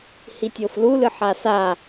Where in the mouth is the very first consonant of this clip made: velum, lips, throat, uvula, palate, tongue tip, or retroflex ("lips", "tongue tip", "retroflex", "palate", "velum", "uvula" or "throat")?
throat